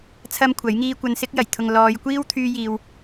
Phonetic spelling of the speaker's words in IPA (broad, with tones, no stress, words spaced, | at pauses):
t͡sʰɐ˥mkʷʰɐ˨˥jŋiː˥ kʷɐ˧nsɪ˥k̚ jɐ˨˩jt̪ʰʊ˨ŋ lɔː˨˧jkʷiː˥wt̪ʰyː˧jiː˨w